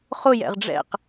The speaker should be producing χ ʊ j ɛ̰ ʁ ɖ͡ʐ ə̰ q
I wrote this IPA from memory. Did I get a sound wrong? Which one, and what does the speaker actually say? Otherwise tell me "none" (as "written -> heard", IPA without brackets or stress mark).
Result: ə̰ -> ɛ̰